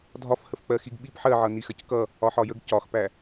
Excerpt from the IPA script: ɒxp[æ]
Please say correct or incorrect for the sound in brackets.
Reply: correct